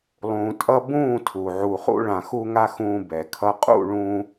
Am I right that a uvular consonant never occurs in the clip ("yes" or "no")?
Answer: no